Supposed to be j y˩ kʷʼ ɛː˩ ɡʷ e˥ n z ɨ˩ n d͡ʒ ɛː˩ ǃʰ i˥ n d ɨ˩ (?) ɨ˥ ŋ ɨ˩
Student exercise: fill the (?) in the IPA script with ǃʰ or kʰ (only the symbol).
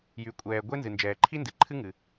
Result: ǃʰ